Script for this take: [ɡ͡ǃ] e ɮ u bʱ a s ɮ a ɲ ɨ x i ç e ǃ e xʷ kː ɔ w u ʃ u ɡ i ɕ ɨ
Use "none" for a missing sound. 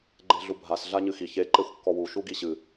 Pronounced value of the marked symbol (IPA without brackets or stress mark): ɡ͡ǃ